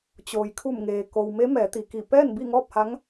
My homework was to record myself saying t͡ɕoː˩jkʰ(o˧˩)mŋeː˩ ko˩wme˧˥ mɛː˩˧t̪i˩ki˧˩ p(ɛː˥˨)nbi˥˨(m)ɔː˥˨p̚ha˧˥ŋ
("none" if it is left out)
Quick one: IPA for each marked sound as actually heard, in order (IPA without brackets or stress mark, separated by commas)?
u˧˩, ɛː˥˨, ŋ